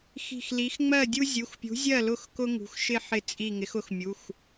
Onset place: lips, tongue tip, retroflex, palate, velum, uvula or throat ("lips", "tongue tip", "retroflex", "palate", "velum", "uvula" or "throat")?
velum